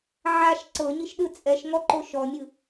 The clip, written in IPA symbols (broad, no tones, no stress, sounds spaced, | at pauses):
ʕ a ʃ ǀ ɤ ɲ i ʃ ɗ ɯ t͡sʼ ɛ ʃ ŋ ɔ ǃ o ʃ ɔ mʲ ɯ